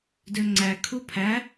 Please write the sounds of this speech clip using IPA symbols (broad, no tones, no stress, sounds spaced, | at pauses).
d ø ŋ͡ǀ æ kʰ u pʰ æ